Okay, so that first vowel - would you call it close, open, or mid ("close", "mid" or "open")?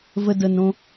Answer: mid